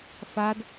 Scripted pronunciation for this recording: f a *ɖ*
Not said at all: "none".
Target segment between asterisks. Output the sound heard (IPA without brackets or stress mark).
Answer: d